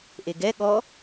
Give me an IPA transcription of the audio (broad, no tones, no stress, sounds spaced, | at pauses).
ʔ e ɡ ɛ ɠ ɔ